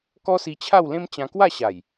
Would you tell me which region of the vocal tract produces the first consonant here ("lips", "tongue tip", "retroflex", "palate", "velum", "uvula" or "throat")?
velum